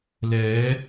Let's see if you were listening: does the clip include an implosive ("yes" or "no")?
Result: no